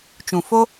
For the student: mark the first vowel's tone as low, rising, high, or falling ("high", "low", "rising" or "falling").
low